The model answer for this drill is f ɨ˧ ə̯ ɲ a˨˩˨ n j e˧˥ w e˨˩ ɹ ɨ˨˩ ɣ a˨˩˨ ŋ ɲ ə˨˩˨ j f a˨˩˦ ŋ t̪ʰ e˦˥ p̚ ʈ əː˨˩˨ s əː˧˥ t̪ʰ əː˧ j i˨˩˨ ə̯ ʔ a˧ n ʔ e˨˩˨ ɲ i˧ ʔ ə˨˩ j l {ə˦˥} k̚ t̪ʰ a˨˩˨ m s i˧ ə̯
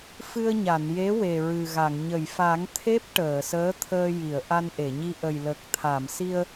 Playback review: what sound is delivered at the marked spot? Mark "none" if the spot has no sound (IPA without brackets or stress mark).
ə˨˩